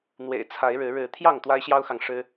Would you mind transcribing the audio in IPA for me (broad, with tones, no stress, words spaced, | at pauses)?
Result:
n̪wḛ˨˩ɪ̯ t͡sʰa˨˦ɪ̯ɻɻ̩˨˦ ɻɻ̩˨˦ t̪ʰjɑ˥˨ŋ t̪wa˦ɪ̯ɕjɑ˦ʊ̯xɑ˨ŋ ʂɻ̩˦